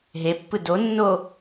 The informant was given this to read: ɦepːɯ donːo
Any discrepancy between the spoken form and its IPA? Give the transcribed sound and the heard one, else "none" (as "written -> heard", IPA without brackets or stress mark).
none